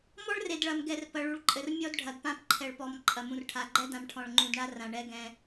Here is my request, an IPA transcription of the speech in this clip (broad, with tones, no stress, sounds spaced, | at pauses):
m ɔ˦ ɭ r e˨ d ɭ ɐ˨ m ɡ ɛ˨ r p ɐ˨ ɭ u˨ ɭ ǃʼ ɘ˨ r mʲ ɔ˦ d ɖʱ ɐ˨ d p ã˦ p ǃʰ ɛ˨ ɭ p ɔ˨ m ǃʼ ɐ˨ m ũ˨ r ʈʰ a˨ ɡ͡ǃ ɛ˦ d ã˨ m ʈʰ ɔ̃˨ ɭ ŋ͡ǃ ũ˨ d ɳ a˦ r ã˨ ɳ ɛ˦ ɡ ɛ̃˦